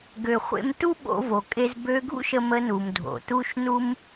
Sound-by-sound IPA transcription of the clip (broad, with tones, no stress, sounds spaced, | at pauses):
ɡ ø˩ χʷ ḛ˧ m t u˥ ɓ o̰˧ v o˩ kʼ e˧ z b ø˧ ɡʱ ṵ˥ ʃ ə˧ m ə˧ n u˩ m dʱ o̰˩ t u˥ ʃ n u˥ m